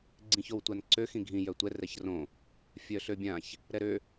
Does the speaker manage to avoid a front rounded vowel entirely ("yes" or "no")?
no